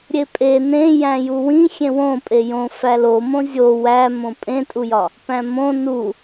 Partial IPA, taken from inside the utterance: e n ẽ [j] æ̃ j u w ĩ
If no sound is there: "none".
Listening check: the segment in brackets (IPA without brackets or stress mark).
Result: j